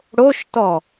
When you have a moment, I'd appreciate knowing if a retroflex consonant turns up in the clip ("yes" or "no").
yes